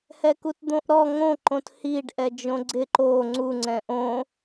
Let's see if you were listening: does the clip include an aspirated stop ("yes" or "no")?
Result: no